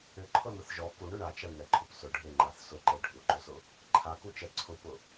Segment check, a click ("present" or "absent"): present